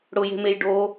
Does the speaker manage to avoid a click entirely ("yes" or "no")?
yes